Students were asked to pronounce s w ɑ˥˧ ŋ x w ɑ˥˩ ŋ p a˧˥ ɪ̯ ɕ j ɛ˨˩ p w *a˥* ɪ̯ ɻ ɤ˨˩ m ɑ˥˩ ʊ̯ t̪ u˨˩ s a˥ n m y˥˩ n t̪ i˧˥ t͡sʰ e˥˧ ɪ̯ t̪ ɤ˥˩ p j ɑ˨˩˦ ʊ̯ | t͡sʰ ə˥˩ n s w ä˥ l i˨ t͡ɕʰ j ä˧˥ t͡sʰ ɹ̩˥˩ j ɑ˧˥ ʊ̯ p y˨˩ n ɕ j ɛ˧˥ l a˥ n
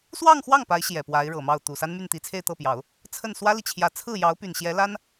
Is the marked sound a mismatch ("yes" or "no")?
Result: yes